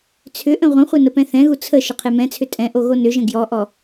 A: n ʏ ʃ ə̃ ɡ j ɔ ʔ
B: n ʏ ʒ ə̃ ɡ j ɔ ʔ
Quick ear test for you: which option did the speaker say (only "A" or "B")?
B